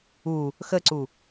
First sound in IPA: u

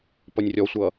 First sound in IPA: p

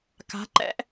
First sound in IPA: k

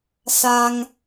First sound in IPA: s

